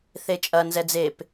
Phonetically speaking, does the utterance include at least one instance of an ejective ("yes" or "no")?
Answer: yes